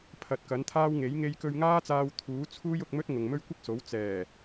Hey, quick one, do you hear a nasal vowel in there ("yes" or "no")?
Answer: no